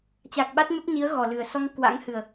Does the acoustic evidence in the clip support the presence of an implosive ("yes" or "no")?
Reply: yes